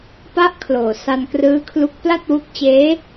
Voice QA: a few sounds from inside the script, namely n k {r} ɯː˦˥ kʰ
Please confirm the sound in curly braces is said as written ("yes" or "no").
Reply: yes